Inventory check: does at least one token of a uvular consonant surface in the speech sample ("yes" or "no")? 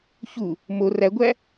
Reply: no